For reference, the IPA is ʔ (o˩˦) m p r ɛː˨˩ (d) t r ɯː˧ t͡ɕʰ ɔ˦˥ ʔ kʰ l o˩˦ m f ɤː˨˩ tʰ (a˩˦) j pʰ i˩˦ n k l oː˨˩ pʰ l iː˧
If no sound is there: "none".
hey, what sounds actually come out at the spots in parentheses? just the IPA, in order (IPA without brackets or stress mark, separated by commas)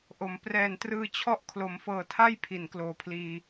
o˩˦, n, a˥˩